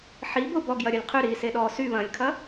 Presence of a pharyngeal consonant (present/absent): present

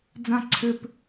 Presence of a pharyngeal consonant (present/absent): absent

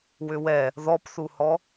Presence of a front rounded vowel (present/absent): present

